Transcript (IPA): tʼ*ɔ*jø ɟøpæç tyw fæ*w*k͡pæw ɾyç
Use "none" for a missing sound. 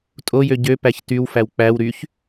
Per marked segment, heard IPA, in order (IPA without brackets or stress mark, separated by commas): o, w